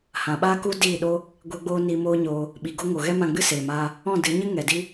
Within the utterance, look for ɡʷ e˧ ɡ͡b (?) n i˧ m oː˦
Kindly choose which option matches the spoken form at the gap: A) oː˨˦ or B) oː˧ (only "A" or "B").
B